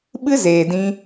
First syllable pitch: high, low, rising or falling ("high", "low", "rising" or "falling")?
high